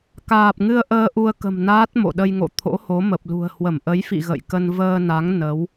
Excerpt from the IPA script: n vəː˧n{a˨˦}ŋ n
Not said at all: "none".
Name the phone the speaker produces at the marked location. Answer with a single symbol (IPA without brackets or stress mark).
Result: a˨˦